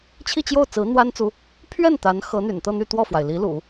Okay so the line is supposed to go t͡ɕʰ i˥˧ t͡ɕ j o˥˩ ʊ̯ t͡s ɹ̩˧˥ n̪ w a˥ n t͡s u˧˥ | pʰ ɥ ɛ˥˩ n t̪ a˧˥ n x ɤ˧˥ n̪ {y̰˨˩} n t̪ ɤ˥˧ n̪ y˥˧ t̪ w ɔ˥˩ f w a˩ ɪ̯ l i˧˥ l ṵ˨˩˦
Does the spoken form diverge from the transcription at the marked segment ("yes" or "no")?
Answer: no